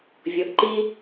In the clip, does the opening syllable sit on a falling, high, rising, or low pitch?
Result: rising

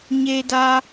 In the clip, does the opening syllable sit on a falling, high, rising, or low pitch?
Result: high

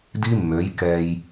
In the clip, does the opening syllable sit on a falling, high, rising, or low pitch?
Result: high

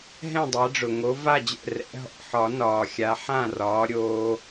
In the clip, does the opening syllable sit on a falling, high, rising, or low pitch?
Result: falling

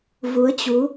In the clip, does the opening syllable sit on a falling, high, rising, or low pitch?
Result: rising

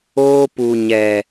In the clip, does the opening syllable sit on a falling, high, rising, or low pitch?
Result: high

